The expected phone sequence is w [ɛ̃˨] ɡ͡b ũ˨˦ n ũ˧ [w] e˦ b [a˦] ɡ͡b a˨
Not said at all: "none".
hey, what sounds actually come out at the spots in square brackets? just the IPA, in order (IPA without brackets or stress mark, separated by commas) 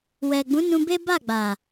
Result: ɛ˨, b, a˦˨